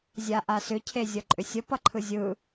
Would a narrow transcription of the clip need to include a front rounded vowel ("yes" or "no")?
yes